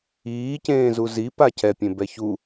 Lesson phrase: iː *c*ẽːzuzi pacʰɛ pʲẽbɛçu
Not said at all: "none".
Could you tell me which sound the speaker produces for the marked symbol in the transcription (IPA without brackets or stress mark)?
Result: c